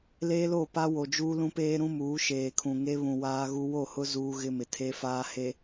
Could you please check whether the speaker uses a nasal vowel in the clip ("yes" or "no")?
yes